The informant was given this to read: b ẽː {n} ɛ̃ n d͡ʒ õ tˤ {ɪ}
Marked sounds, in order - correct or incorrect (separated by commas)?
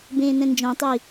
correct, incorrect